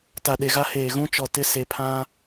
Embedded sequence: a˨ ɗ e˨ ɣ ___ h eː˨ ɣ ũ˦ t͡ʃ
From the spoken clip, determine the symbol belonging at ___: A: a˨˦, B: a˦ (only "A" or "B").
B